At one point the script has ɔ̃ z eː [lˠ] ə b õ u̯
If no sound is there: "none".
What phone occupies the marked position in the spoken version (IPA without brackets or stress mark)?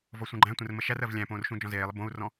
lˠ